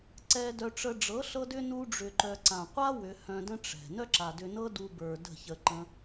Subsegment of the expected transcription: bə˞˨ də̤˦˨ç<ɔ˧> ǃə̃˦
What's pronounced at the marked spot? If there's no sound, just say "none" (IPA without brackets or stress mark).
ə˧